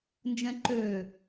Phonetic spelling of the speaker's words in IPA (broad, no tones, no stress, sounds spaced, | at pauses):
n d͡ʒ ɛ̃ ǃ ø